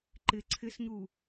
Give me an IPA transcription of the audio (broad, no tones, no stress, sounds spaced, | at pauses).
ǃ ɪ ǀʰ ɪ s ɲ u